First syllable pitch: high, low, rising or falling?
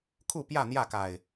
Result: falling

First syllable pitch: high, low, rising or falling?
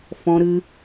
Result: high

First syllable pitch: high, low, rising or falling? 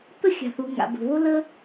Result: high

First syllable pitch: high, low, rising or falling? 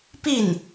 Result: falling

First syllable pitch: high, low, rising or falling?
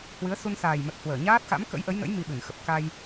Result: rising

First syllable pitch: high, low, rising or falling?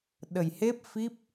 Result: low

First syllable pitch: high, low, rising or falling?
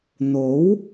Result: rising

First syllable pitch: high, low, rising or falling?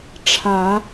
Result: rising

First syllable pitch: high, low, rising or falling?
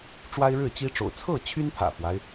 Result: high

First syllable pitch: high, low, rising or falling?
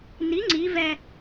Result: rising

